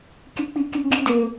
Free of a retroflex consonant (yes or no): yes